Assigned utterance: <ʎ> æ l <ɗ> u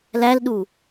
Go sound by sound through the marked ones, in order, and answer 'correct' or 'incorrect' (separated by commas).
incorrect, correct